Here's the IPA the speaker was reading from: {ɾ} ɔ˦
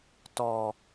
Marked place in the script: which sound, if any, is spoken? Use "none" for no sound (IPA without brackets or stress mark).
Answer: t